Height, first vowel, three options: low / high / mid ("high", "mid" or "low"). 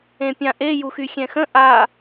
mid